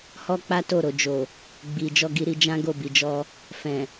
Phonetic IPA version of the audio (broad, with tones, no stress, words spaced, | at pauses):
hɔ˦k͡pa˦to˦˨ ɾo˨d͡ʒo˨ | ɡ͡bi˨ d͡ʒɔ˧ɡi˧ɾi˧ d͡ʒã˦ɡo˦˨bi˨d͡ʒɔ˧ | fɛ̃˨